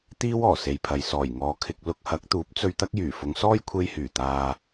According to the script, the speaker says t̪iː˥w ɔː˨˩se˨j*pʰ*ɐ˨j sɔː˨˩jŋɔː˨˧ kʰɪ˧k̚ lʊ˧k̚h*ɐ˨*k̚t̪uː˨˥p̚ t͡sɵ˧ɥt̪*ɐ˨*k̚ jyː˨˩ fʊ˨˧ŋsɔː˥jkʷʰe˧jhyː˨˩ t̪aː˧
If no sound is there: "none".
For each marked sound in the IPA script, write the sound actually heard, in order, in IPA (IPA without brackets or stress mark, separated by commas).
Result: pʰ, ɐ˨˥, ɐ˥